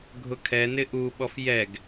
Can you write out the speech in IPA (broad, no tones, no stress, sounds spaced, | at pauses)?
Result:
ɡʱ ʊ kʰ ɛ n ɪ ʔ u ɓ ɔ f j ɛ ɡ